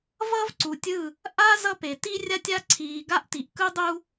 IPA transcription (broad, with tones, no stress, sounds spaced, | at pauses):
v ʌ˦ v ǀ u˨ tʲ ɯ˦˨ | ʔ a˦ z ʌ˦ p e˨ t i˦ rʲ a˦ tʲ a˦ ǀʰ iː˨ ɡ a˦ ʔ t i˨ ʔ k ɯ˦ dˤ u˦